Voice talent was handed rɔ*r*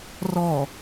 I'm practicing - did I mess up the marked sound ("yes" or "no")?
yes